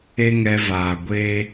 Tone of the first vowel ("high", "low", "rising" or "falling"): high